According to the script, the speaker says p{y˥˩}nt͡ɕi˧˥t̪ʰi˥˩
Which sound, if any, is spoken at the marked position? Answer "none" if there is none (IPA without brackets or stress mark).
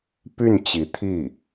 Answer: y˥˩